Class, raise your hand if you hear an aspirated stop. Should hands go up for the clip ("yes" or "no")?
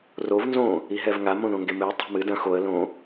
no